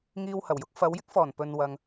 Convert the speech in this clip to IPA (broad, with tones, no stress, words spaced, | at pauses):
ŋiː˧whɐ˨˩wjʊ˨˥k̚ fɐ˨˧wjɪ˥k̚fɔː˨˩n pɵ˨nwɐ˨ŋ